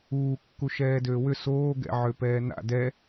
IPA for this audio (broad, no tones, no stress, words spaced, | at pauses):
uːkːu ʃɛːdøːwʏ soːɡɛ̰ʕø pɛːna̰ dɛ